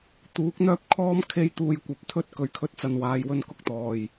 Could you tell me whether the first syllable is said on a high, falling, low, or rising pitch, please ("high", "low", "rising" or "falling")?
rising